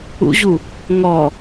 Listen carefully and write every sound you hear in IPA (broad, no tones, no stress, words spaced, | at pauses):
ṵʑu | ŋɔ